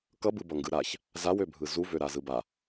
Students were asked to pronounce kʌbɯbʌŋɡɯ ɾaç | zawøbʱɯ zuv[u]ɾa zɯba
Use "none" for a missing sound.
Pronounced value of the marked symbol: ø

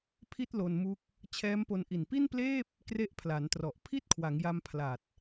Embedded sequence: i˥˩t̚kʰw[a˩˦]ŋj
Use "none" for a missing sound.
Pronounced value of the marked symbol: a˩˦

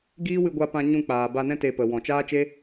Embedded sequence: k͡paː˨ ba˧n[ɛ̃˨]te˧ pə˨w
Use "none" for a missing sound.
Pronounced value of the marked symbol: ɛ̃˦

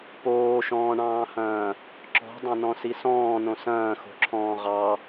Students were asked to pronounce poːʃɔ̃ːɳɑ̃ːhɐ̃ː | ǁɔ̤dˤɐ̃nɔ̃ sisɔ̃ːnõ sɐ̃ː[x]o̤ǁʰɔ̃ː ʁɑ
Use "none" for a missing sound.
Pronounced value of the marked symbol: x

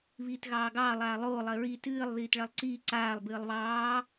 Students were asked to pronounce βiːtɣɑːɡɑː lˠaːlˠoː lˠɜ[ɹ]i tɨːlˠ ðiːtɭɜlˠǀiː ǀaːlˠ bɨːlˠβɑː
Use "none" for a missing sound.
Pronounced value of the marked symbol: ɹ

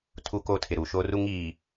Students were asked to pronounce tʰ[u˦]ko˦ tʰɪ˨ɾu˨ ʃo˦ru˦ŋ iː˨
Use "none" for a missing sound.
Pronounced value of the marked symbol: u˦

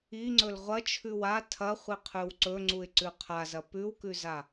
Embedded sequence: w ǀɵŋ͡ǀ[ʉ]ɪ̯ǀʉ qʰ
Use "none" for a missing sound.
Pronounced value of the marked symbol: u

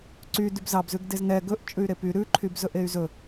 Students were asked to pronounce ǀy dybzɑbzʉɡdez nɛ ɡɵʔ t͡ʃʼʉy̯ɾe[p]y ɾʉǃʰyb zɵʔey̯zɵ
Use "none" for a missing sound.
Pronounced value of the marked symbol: p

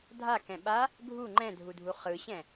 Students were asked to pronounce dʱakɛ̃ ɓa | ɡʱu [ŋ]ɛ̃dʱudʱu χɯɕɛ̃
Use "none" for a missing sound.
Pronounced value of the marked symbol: ŋ͡ǃ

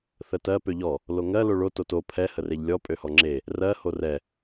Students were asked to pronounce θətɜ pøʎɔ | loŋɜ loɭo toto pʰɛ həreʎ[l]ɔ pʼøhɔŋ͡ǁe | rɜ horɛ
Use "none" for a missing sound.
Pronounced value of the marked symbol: lʲ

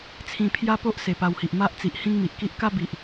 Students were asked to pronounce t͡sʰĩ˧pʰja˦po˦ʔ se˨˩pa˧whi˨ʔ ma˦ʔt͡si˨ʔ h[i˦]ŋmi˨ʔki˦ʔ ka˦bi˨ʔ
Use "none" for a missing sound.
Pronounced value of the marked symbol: ĩ˦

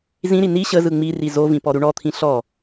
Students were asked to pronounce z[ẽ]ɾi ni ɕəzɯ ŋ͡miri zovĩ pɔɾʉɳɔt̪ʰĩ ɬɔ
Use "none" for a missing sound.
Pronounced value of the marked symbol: ĩ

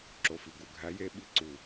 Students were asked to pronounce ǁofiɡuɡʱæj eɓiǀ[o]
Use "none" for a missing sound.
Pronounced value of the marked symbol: u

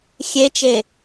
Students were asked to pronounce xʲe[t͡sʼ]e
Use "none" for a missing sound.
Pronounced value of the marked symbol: t͡ʃ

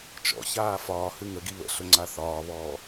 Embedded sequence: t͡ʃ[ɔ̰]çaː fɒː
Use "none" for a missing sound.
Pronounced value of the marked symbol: ɔ̰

